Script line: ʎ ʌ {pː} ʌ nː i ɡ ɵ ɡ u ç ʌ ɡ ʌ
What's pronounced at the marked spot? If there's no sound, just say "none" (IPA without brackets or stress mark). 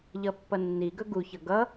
pː